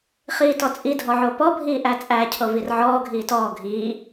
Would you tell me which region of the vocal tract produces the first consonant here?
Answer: uvula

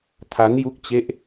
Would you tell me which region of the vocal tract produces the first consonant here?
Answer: tongue tip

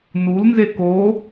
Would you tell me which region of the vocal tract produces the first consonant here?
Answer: tongue tip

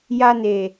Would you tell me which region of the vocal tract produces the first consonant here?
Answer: palate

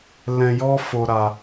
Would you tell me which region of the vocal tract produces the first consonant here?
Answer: tongue tip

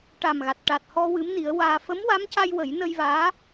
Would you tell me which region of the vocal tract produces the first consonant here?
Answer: retroflex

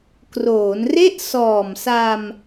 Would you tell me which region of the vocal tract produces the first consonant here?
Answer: velum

